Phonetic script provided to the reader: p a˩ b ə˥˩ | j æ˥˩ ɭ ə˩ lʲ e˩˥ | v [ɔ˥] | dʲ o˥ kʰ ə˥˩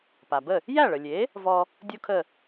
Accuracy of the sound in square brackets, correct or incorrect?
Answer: incorrect